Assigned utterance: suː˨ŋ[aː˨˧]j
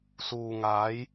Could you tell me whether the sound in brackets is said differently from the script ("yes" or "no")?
no